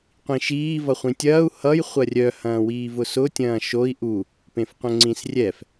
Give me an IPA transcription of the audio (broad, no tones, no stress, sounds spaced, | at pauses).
qʷ ĩ ʃ iː v ʌ χʷ ĩ tʲ ɐː u̯ h ʌ j χʷ ɐ rʲ œ h ɐ̃ː w iː v ʊ s ʊ tʲ ɐ̃ː ʃ o i̯ ʔ u | p ẽ f qʷ œ̃ ŋ͡ǀ ĩ s rʲ ɛ f